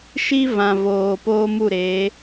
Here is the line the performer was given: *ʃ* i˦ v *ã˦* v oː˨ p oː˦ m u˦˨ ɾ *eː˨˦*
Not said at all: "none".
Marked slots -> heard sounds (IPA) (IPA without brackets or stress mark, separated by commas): ʃ, ã˨, eː˨˦